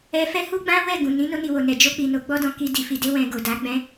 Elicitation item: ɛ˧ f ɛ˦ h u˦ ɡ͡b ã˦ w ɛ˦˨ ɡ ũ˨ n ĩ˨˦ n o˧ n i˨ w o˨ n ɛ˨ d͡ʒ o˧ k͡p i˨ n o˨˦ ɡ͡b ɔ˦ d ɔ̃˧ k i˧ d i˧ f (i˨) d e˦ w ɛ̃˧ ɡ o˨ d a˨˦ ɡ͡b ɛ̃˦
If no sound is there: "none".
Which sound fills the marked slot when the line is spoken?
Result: i˧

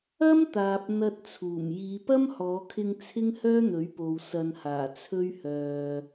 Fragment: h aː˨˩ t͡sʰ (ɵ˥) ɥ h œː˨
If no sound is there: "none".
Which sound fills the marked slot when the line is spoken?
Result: ɵ˥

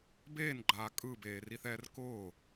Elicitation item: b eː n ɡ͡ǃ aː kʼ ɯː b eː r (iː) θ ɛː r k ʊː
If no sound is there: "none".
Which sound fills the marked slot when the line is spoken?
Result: i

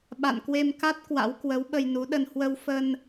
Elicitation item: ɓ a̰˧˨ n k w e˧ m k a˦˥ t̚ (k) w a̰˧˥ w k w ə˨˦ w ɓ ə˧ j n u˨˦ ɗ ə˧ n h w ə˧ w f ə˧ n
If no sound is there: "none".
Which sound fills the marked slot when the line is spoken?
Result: k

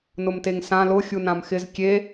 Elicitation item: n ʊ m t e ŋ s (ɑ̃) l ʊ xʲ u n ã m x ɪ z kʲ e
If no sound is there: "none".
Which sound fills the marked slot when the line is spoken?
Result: ã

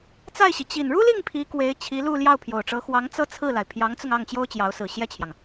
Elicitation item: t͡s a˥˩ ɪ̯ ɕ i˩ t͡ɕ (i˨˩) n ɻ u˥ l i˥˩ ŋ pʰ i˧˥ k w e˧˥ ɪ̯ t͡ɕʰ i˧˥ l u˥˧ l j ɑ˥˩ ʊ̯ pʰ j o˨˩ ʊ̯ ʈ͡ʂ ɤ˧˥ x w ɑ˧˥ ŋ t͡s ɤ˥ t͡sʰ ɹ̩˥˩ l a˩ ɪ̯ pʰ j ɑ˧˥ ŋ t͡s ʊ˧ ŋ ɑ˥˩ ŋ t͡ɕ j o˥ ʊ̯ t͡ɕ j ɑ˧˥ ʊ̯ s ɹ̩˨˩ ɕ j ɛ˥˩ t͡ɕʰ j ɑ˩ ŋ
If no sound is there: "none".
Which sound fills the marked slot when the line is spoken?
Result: i˨˩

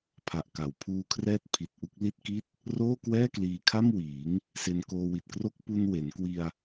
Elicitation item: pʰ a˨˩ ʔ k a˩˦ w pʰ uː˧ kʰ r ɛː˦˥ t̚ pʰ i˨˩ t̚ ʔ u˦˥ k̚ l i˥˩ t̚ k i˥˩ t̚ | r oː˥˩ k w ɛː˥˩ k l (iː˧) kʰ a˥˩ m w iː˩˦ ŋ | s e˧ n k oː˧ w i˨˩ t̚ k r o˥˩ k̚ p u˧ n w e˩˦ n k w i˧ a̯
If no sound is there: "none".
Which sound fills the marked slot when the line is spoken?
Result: iː˧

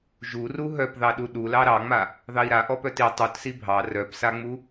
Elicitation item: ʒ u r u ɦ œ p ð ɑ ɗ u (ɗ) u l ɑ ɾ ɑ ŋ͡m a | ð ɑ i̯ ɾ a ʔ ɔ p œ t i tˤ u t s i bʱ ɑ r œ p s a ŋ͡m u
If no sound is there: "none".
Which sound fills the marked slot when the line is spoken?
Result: ɗ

